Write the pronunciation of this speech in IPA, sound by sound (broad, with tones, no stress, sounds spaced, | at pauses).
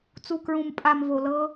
t͡s u˨ k ɹ ũ˨ m pʼ a˨ m v o˨ l ɤ˦